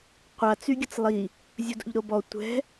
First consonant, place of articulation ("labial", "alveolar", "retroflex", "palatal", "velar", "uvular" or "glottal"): uvular